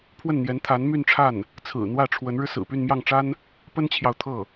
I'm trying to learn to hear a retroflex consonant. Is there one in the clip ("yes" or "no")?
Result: yes